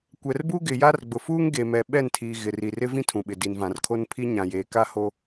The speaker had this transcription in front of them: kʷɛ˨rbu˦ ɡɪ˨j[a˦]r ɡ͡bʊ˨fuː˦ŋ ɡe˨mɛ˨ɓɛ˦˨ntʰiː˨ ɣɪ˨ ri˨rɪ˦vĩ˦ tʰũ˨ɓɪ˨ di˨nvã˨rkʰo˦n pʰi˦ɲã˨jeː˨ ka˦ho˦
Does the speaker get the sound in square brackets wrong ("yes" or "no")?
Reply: no